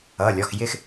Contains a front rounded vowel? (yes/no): no